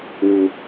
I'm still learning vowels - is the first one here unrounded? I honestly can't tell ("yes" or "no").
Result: no